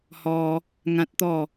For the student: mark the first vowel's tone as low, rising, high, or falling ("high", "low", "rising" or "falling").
high